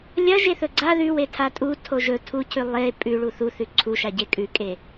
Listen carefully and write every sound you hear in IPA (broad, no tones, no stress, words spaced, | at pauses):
lʲɐ ʒeθɵɡ͡ǀa ðʉwetʰa tʼu tʰoʒɵ tʰucʰʉ lˠe pʼʉ ɭuθu θʉǀʰuʃa ɟekʼʉkʼe